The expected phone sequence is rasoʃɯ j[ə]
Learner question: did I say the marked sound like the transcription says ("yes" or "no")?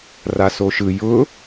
no